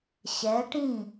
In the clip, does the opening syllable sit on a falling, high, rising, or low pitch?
rising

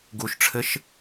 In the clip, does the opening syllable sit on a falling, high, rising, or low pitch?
low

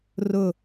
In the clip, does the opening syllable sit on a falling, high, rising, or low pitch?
falling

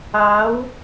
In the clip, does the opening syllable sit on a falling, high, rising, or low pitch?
rising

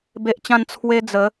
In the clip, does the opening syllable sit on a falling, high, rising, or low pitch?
high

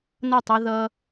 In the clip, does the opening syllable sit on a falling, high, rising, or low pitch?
falling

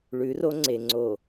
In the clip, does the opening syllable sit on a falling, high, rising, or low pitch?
rising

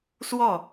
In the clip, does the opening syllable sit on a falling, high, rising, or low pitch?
falling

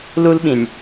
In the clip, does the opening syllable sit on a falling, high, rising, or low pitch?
high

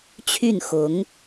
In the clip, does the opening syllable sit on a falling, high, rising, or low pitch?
falling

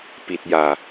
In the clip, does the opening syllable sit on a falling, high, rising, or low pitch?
low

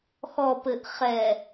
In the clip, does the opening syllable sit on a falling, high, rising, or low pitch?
low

